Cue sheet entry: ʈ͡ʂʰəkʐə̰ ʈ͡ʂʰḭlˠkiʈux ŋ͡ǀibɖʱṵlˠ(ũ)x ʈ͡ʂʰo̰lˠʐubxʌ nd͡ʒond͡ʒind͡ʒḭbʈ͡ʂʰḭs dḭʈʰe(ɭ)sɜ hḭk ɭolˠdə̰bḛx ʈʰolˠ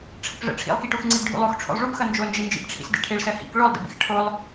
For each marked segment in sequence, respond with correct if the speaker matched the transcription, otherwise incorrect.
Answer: incorrect, correct

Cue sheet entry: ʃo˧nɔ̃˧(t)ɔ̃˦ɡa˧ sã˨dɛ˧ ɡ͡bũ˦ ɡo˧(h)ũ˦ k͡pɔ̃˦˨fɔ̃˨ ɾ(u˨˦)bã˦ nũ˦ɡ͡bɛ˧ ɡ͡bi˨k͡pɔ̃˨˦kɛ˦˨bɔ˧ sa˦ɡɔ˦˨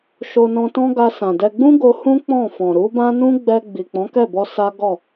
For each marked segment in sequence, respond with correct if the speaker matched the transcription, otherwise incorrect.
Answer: correct, correct, correct

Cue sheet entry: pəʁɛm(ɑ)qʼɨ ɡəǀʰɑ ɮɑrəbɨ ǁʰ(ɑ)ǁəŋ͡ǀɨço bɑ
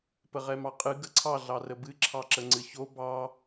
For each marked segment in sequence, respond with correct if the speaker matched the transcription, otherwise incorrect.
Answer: correct, correct

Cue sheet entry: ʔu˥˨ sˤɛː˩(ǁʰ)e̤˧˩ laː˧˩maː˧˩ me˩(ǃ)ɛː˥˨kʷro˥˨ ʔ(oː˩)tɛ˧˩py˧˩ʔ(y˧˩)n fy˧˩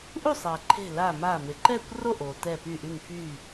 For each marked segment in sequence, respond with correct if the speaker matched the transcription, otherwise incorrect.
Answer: incorrect, correct, correct, correct

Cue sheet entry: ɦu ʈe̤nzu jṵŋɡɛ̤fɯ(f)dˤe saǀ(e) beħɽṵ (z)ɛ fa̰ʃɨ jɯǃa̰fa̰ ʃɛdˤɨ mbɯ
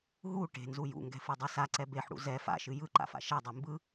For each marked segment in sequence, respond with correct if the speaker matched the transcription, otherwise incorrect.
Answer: incorrect, incorrect, correct

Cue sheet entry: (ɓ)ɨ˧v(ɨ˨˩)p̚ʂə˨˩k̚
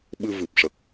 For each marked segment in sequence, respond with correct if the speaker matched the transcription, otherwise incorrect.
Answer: correct, correct

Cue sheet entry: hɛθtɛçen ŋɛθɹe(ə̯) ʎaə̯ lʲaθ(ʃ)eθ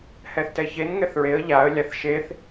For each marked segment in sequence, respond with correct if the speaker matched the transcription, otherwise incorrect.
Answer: correct, correct

